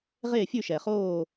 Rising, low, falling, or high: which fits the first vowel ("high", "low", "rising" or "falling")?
falling